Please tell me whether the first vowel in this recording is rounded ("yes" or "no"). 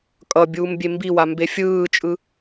no